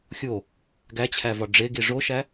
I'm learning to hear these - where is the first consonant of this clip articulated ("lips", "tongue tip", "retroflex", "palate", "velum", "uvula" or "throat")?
velum